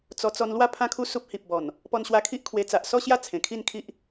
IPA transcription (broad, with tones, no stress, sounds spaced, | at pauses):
t͡s ɔ˧ t͡s ɔ˧ n l w a˥˧ pʰ ã˦ kʰ u˦ s u˦ p̚ h i˨ p̚ b ɔ˨˩ n | p ɔ˧ n ɕ w a˧ kʰ i˦ ʔ kʰ w e˧ t͡s a˨ ʔ s ɔ˥˧ ɕ j a˥˧ t͡sʰ ẽ˨˩ kʰ i˥˧ n kʰ i˦ ʔ